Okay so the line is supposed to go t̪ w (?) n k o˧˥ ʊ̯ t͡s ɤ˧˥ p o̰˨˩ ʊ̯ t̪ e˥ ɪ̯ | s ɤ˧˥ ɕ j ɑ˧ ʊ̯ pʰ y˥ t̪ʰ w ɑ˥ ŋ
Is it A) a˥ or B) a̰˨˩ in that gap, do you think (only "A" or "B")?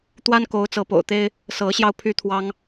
A